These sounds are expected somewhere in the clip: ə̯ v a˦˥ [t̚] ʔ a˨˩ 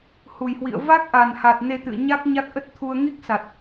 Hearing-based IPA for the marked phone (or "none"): k̚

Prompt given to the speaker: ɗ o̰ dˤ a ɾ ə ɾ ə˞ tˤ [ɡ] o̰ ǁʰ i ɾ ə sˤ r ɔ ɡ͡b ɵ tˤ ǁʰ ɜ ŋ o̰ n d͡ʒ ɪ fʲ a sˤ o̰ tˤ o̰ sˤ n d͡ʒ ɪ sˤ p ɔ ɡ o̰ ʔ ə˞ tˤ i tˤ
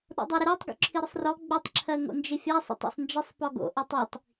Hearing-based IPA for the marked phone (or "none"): ɡ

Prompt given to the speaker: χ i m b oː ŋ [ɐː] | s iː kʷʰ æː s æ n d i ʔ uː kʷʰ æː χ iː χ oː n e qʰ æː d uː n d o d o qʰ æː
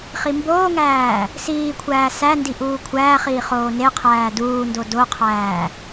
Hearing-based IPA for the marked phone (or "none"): æː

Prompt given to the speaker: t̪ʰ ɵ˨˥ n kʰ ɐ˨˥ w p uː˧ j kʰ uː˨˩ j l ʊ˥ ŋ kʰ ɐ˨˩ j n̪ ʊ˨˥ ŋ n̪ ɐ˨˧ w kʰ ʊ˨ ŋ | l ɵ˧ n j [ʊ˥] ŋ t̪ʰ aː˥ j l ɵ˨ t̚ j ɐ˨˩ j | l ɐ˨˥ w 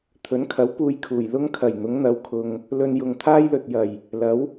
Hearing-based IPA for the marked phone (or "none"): ʊ˨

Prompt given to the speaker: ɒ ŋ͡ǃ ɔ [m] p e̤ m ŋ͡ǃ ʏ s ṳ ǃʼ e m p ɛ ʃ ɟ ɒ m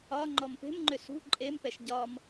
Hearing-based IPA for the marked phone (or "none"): m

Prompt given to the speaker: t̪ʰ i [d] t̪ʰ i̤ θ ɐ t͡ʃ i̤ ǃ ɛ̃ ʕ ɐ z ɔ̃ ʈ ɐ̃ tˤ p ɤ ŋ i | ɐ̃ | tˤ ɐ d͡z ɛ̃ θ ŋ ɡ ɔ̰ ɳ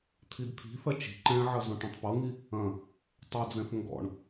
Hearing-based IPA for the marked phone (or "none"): d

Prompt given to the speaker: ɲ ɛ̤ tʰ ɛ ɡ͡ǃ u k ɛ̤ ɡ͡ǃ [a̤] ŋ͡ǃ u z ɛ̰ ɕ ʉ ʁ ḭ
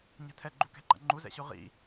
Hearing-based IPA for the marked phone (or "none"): a̰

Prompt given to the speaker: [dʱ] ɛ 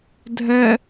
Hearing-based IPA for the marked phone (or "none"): dʱ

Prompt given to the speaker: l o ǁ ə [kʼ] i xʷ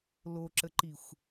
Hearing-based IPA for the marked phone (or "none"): ǃ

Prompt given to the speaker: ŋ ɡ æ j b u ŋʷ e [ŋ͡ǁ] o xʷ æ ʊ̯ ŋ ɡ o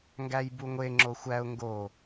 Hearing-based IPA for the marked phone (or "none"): ŋ͡ǁ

